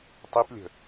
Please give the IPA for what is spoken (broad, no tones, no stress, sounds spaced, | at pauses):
tˤ i p lʲ ə̤